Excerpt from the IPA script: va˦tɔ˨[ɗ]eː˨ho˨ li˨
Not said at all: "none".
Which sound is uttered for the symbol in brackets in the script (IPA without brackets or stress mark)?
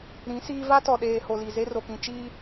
ɗ